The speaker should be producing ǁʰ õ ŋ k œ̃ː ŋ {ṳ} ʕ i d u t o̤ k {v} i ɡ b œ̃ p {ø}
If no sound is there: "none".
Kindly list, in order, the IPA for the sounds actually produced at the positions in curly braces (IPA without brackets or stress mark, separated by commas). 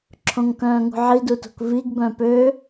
ṳ, v, ø